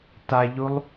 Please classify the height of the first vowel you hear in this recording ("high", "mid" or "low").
low